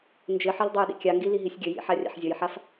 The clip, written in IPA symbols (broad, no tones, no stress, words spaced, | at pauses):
nd͡ʒɘħɘl dˤajɗḭkʲaŋɡi liɦisʲɡʲɘjḭ ħarʲa̰ħzʲʌjħaf